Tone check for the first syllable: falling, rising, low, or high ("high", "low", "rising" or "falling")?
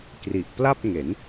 low